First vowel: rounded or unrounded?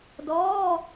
rounded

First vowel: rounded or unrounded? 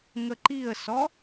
unrounded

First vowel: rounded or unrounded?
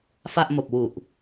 unrounded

